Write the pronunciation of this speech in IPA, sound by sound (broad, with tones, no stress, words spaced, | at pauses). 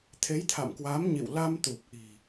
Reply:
t̪ʰe˨˦jt̪ʰa̰˧˨mkwa˨˦mɲḭ˧˨w la˧mt̪u˨˩p̚ʔi̤˨˩